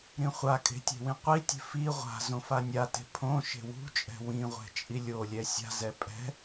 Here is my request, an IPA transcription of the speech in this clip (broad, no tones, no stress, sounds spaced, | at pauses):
ɾ ĩ χʷ a kʼ e̤ tʲ e̤ w ĩ qʷ i tʲ e̤ f i ʁʷ a̤ z õ f a nʲ a t e̤ pʰ õ ʃ e̤ w ṳ t͡ʃʼ ɛ̤ w ĩ ʁʷ ɛ̤ t͡ʃʼ i lʲ o lʲ ɛ sʲ a̤ z ɛ pʼ ɛ̤